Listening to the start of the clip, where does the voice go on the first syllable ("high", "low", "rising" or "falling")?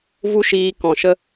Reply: high